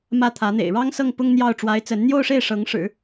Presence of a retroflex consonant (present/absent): present